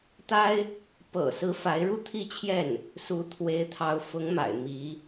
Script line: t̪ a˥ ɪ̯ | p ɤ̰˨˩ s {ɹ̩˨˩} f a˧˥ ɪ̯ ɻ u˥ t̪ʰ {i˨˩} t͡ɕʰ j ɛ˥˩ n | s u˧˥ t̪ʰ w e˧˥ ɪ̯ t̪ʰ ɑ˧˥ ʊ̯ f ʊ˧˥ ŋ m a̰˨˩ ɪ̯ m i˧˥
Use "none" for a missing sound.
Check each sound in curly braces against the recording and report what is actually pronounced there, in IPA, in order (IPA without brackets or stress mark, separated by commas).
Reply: ɹ̩˧˥, i˥˧